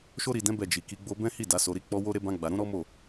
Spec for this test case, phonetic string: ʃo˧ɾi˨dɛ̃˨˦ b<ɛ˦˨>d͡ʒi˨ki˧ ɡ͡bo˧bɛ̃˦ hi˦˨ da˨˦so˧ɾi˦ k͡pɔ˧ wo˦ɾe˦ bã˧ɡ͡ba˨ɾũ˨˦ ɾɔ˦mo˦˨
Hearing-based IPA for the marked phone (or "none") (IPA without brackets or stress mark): ɛ˦˨